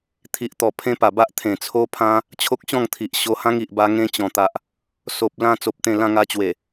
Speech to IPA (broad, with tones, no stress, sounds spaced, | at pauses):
t̪ʰ i˨ ʔ t̪ ɔ˨˩ pʰ ẽ˦ p a˨˩ b a˦ ʔ t̪ʰ ẽ˨˩ t͡sʰ o˦ pʰ ã˦ | t͡ɕʰ o˦ k̚ ɕ ɔ̃˥˧ ŋ t̪ʰ i˨ ʔ ɕ o˧ h ã˦ ŋ i˨ ʔ b a˧ ŋ ẽ˧ t͡ɕ ɔ̃˨˩ t̪ a˨ ʔ | s o˨ p̚ l ã˧ t͡s o˨ p̚ t̪ ẽ˧ l ã˧ ŋ a˧ t͡ɕ w e˨˩